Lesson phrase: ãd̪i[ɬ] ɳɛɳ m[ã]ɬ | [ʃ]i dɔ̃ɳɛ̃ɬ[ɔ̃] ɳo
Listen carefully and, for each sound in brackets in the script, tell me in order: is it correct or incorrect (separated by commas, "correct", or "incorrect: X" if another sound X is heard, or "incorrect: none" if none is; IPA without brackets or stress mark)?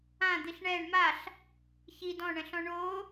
correct, incorrect: a, incorrect: ç, correct